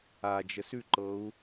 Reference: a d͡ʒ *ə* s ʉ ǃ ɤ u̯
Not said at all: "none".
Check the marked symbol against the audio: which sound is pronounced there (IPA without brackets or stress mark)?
ə